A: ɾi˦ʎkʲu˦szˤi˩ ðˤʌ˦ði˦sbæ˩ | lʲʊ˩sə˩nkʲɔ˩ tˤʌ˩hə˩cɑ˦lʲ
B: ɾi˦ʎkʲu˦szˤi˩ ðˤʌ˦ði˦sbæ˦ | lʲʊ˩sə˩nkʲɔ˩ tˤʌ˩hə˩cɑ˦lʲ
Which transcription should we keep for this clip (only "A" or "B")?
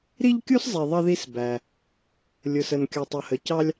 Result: A